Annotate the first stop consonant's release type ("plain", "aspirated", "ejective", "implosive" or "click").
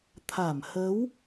aspirated